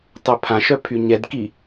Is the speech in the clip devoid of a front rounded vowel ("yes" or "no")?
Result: no